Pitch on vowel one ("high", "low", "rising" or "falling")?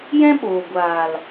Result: high